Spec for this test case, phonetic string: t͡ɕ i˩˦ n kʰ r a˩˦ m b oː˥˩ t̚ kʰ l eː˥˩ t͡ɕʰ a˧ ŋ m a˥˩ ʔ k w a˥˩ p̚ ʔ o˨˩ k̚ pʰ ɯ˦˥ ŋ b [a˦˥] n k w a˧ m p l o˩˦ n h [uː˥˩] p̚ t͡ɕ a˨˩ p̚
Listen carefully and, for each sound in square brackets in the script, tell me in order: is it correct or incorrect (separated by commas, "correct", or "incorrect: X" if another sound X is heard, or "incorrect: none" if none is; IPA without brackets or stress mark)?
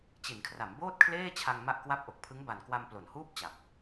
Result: incorrect: a˨˩, correct